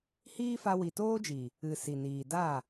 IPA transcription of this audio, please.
hiː˦fa˧ wi˨toː˦d͡ʒi˨ | ɨ˨ si˨niː˨da˦˨

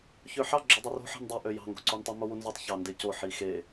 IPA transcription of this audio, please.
çøħɑ ɡ͡ǁødˤøro̤ ħe̤ndˤi ʔøjɑ̤ ŋɡo̤ǀontˤy mowunzutˤ çɑndeco ħixe

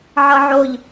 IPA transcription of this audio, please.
ʕʌʕoʎ

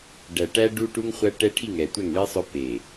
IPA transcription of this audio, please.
ɖæ˨ʈæ˦ ɖu˦ ʈu˦ŋχʷæ˦ ʈɛ˦ʈʰi˦˨ŋ ɛ˨tʷɛ˦˨ŋɳi˦sˤœ˦ pe˨

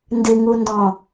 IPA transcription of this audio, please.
ndɨŋundɔ̃

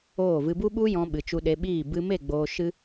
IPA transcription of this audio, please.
oː˦˨ vɨ˧bu˦ɓu˦jɔ̃˧ ɓɨ˨t͡ʃu˧ɗe˧ɓiː˦˨ bɨ˧me˦˨ ɡ͡boː˧ʃɨ˦

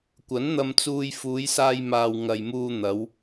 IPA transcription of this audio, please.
kʷɐ˨˥nn̪ɐ˧m t͡suː˧j fuː˨˧jsaː˧jmaː˨w ŋɐ˨jmuː˧ n̪ɐ˨˧w

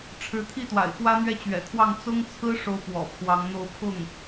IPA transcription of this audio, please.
ʈ͡ʂʰɻ̩˧˥t̪ʰi˥˩t̪wa̰˨˩ɪ̯ xwä˥n̪ɥɛ˥˩t͡ɕɥɛ̰˨˩t̪ʰwɑ˥˩ŋ t͡sʊ˥ŋt͡sʰɹ̩˥ ʂo˥ʊ̯pwɔ̰˨˩pʰwɑ˧˥ŋn̪o˥ʊ̯ pʰʊ˥˩ŋ

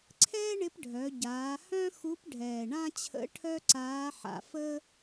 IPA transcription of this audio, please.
ǀʰɛː˥ɳɪ˧˥p ɖʱœ˩˧ ɟaː˩˧ hœ̃˥xu˧˥pɖʱɛː˨˩ ɳã˥ t͡ɕʰə̰˧˥ ʈʰœ˥ǀaː˧˥ħa̰˨˩ fə˥

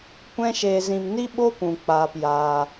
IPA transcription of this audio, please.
kʷɛ̃˦ʃeː˧zĩ˧m ni˦ɓo˦ pũ˨ k͡paː˧pjaː˧

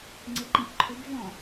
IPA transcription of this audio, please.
ŋ͡ǀɪǃĩʔǃʰʊb vɔ̃

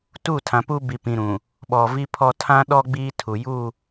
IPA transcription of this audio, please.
tu˦˨tʰã˨pu˦ bi˨pĩ˨ ɾũ˨ | ɓɔ˨ vi˦pʰɔ˦ tʰã˦ɗɔ˦ ɡ͡biː˦tʰu˨ju˦˨

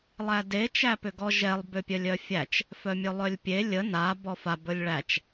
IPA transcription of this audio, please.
lˠæde t͡ʃæpʏɡɔʒɛlˠ bʏpʲœlʲœfʲæt͡ʃ | fœmʲœlˠœlʲpʲe lʲə na bɔfa bɵlʲɭæt͡ʃ

